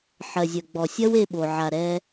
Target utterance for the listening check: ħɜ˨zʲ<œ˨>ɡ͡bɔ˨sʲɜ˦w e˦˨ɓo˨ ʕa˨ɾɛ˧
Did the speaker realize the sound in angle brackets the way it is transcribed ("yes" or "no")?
yes